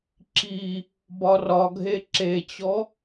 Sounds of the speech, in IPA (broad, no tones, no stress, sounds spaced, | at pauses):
ǁ i | b ɒ r ɒ ɡʱ e ǁ e t͡ɕ ɔ